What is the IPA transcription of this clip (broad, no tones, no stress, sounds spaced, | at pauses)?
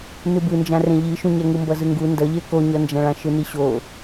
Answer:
n ɯ b ɯ n d͡ʒ ã r ẽ ʎ i ʃ ũ ɲ ɛ ŋ ɯ m b ʌ z ɯ ŋ ɡ u n d ʌ ʎ e k o ɲ ʌ n d͡ʒ ã ɭ ã ʃ ɯ n i ɕ o